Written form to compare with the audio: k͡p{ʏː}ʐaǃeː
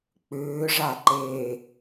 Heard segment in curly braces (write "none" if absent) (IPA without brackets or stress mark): ʏː